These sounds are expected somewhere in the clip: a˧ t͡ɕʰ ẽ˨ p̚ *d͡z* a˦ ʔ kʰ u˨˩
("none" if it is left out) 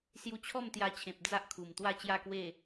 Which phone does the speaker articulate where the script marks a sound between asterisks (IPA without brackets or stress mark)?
d͡z